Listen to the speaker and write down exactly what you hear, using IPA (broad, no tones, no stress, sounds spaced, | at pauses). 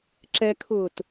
ǁ ɛ kʰ ʊː t